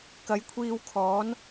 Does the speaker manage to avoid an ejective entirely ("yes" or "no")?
yes